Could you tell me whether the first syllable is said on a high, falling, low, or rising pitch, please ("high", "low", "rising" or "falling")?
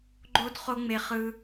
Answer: high